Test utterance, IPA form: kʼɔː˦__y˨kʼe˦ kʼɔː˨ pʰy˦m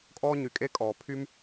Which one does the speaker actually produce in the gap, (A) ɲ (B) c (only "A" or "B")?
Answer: A